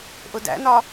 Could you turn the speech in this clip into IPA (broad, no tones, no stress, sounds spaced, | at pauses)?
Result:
ʔ ʊ d æ̰ n ɒ